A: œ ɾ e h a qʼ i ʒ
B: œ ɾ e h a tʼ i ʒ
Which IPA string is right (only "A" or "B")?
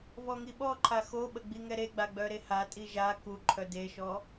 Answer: B